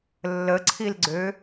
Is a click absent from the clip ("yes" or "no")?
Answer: no